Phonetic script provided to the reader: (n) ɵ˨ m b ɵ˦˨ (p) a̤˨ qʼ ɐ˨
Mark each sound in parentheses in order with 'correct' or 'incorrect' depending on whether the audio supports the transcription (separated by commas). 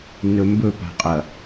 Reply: correct, correct